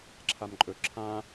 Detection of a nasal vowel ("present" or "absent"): present